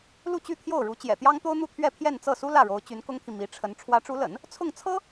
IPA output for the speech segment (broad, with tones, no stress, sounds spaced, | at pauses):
l u˥˧ t͡ɕ y˥˧ t̪ʰ j o˥˩ ʊ̯ ɻ u˧˥ t͡ɕ j ɛ̰˨˩ t̪ j ɑ˥ ŋ t̪ o˥ ʊ̯ n̪ u˥˧ t̪ʰ ɥ ɛ˥˧ pʰ j ɛ˥˧ n t͡s ɤ˥˩ s u˥ l ä˥˩ ɻ o˧˥ ʊ̯ t͡ɕ y˧˥ n k ʊ˥ ŋ t̪ʰ i˨ m i˧˥ ʈ͡ʂʰ ə˧˥ n ʈ͡ʂʰ w ä˧˥ ʈ͡ʂ u˧˥ l ə̰˨˩˦ n | t͡sʰ ʊ˥˩ ŋ t͡sʰ ɤ˥